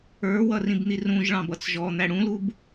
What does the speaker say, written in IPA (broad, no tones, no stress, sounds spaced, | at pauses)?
ə˞ w ʌ r ĩ b n̪ i r ũ ʒ ɭ ɑ̃ b ʌ t͡s ʒ ɔ n̪ æ ɽ ũ l u b